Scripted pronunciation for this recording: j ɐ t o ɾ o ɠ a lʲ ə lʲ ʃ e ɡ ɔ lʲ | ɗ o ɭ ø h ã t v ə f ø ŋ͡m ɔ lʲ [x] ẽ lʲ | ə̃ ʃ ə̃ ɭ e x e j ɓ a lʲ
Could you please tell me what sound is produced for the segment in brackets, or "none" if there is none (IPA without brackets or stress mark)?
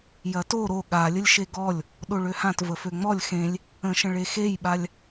x